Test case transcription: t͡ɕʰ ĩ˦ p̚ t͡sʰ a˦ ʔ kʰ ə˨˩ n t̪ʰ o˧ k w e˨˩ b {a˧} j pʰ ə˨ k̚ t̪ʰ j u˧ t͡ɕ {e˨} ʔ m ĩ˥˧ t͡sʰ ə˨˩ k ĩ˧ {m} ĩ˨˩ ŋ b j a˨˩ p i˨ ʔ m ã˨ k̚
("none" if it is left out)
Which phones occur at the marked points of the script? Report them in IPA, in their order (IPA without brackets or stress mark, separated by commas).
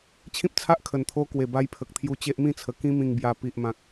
a˧, e˦, m